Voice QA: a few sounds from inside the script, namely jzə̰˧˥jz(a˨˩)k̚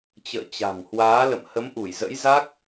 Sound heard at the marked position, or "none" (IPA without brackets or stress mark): a˦˥